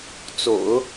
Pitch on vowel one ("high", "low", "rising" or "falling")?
low